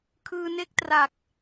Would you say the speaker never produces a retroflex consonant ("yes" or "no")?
yes